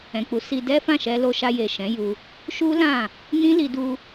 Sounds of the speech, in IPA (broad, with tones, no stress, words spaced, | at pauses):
ɛ̃˨k͡pu˨˦si˧ dɛ˦fã˦˨ʃɛ˧ lo˧ʃa˧ je˨ʃɛ̃˨˦ju˧ | ʃu˦lã˦˨ | nĩ˦li˧ du˧